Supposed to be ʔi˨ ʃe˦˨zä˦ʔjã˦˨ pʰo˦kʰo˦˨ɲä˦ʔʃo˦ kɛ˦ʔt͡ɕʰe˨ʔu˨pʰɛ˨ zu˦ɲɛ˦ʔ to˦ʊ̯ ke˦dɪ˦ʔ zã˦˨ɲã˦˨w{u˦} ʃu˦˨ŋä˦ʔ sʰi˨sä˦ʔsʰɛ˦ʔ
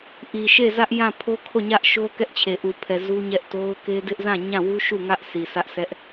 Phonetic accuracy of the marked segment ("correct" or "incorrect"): correct